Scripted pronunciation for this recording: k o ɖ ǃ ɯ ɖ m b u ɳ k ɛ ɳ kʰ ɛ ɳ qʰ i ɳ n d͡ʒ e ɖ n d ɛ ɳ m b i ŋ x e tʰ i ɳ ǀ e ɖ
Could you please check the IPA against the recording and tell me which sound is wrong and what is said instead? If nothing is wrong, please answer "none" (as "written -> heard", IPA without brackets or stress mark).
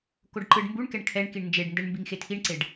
qʰ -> k